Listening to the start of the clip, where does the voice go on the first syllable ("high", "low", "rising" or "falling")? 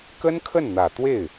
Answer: high